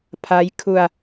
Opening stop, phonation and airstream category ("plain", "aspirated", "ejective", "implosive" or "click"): aspirated